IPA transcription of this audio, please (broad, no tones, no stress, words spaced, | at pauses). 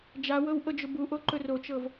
d͡ʒawɤw ʔɤd͡ʒʊbuʔo ǃɵrot͡ʃɤv